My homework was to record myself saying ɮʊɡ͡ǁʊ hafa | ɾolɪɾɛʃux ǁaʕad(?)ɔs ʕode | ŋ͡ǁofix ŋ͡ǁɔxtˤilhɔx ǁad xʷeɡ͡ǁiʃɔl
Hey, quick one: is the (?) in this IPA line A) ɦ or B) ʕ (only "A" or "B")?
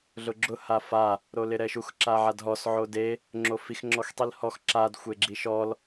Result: A